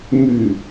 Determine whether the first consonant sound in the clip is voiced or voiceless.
voiced